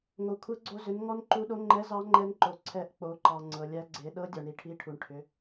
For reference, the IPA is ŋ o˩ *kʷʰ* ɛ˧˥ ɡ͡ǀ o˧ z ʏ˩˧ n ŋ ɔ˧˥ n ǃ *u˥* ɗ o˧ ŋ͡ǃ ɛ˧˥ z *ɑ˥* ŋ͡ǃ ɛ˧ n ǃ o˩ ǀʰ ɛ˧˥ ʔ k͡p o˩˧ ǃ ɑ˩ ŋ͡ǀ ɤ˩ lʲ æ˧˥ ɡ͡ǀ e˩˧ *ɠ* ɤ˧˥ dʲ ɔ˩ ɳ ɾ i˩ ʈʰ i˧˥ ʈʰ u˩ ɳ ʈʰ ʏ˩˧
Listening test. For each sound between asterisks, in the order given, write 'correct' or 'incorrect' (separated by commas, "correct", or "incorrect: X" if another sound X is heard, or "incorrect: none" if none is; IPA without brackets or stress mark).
correct, incorrect: u˧, incorrect: ɑ˧˥, incorrect: ɗ